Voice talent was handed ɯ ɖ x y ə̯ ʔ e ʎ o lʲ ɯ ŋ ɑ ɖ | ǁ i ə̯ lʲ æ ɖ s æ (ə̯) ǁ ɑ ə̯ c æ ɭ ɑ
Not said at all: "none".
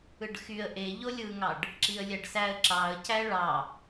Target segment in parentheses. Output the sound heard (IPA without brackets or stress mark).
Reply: ə̯